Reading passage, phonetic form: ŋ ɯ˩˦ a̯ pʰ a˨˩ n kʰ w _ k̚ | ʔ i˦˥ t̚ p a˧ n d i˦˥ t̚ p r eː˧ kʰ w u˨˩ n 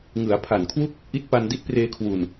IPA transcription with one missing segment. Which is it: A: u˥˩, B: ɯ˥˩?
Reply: A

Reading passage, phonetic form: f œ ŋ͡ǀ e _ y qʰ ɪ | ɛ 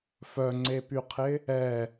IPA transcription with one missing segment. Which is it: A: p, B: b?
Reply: A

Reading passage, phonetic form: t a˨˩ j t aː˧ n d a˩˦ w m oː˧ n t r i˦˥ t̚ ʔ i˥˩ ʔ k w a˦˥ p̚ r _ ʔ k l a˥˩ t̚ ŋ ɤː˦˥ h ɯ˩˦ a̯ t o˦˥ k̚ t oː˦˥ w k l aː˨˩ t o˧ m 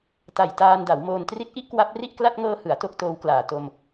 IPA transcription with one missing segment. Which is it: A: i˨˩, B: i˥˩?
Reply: B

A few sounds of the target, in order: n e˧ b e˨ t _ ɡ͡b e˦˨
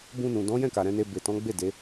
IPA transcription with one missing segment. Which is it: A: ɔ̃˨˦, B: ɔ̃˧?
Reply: A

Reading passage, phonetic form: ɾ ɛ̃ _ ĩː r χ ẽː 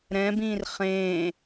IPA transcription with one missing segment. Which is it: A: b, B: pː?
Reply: A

